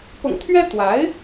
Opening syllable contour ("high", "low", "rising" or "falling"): low